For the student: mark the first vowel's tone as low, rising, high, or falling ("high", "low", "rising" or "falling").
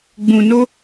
low